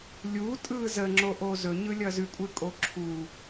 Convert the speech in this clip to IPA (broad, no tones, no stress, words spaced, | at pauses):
lʲutʼɯ zəŋ͡ǁoʔo zɵɲɯlʲʌ zʉkʷʼɯkʼo ǁʰu